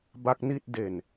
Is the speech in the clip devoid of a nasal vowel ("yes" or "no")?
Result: yes